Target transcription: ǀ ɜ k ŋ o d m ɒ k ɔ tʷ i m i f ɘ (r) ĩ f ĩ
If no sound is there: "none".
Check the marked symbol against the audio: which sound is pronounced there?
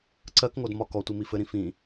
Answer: ɾ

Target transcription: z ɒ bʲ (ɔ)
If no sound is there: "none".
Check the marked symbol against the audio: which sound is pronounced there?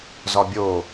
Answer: o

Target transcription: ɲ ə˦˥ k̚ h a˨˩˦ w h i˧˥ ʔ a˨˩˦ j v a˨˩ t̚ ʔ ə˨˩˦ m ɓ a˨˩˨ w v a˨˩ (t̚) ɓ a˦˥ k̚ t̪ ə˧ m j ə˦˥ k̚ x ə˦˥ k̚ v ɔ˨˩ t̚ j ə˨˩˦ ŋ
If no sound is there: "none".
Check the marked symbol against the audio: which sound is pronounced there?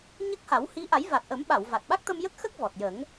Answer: t̚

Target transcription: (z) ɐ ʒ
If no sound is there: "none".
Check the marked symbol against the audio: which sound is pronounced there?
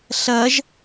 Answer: ɬ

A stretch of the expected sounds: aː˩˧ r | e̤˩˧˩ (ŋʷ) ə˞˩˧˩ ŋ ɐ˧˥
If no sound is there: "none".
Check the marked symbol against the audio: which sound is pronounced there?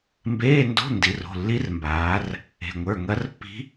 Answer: ŋʷ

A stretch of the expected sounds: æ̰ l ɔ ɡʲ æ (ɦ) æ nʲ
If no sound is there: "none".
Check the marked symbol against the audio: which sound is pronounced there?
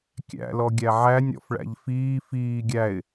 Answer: ʕ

